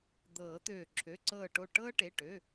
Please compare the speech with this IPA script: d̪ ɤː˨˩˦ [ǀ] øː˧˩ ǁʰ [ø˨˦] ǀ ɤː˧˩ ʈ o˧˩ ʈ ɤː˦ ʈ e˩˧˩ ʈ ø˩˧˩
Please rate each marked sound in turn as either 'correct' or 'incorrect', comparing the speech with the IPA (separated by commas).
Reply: incorrect, incorrect